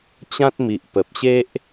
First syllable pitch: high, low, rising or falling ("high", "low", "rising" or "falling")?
high